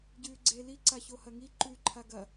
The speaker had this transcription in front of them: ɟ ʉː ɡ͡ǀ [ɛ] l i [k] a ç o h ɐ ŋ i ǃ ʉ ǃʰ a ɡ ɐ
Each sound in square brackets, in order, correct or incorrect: incorrect: e, incorrect: ǀ

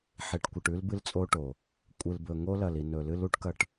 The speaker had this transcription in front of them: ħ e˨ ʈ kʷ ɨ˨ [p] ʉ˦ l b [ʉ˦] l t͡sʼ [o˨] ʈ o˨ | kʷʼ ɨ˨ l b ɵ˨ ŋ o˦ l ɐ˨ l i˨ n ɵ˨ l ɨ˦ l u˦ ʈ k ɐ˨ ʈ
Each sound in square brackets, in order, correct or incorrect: incorrect: ʈ, incorrect: ɨ˦, incorrect: o˦

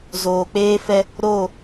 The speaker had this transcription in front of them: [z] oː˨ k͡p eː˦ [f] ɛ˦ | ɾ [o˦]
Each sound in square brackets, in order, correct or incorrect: correct, correct, incorrect: o˦˨

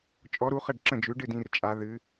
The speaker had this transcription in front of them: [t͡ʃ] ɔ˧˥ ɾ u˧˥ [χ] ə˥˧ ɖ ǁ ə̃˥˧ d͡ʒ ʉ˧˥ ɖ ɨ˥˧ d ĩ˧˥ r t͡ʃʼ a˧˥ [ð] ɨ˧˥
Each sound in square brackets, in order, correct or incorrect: incorrect: t͡ʃʼ, correct, correct

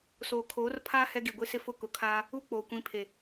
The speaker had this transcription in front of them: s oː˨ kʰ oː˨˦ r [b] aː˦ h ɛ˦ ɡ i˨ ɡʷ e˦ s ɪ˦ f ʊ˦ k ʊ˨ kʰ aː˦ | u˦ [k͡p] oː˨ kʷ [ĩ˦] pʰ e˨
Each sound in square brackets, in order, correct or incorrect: incorrect: pʰ, correct, incorrect: ĩ˨˦

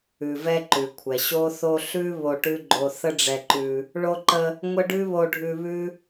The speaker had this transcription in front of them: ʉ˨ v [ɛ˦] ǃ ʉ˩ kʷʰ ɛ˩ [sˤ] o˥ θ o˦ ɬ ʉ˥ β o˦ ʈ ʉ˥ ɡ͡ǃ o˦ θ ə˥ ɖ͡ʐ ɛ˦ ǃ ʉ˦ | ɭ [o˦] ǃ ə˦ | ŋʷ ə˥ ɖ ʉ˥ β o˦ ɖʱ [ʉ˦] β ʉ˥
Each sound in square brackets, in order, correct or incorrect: correct, incorrect: ɕ, correct, correct

